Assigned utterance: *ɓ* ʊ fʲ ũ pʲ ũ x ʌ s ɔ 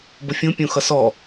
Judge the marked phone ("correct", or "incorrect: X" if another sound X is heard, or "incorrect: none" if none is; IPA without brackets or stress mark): incorrect: b